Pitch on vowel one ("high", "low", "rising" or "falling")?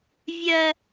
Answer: high